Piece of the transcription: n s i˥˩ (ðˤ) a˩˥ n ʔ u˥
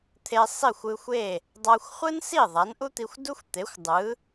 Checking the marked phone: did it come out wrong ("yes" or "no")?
no